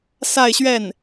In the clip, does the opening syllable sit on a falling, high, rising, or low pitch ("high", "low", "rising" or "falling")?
falling